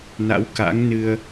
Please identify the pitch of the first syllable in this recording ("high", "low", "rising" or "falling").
rising